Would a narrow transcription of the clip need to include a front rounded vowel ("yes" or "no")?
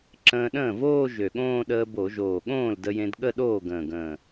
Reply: yes